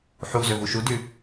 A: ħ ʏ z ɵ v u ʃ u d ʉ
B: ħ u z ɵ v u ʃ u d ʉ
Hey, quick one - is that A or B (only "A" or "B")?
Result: B